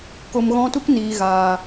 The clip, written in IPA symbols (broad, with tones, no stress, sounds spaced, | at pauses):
k o˧ m ɣ ɔ̃˦ t u˦ k n iː˨ ɣ aː˨